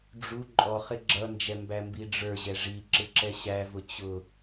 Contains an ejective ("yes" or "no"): yes